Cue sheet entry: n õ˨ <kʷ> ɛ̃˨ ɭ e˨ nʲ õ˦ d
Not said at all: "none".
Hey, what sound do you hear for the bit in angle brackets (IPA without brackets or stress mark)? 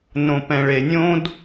p